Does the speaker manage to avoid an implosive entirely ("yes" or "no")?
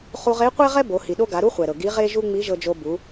no